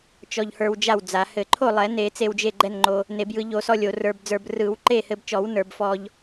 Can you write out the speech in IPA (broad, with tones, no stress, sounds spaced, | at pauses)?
t͡ʃ ɔ˧ ʎ h ə˞˧ w d͡ʒ a˥˩ w d͡z a˨˩˦ h ɘ˨˩˦ ǃʰ o˥˩ lˠ ɛ˨˩˦ n e˨˩˦ t͡s e˧ w d͡ʒ e˥˩ ɡ͡ǃ ɛ˥˩ n ŋ͡ǃ o˧ | n e˨˩˦ b j ɯ˨˩˦ ʎ o˨˩˦ s ɔ˧ lʲ o˨˩˦ r ə˞˧ b d͡z ə˞˧ b r ɯ˨˩˦ w ǃ e˥˩ h ɘ˧ b t͡ʃ ɔ˨˩˦ w n ə˞˨˩˦ b f ɔ˧ ʎ